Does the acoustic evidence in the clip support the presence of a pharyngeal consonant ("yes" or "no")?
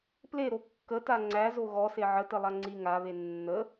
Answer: yes